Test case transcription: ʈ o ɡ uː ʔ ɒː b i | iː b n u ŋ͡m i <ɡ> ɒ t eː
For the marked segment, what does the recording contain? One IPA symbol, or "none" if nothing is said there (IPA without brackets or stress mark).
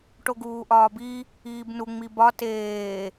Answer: b